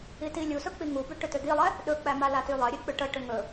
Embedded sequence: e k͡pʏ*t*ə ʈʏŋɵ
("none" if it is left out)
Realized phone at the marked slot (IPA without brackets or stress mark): ʈ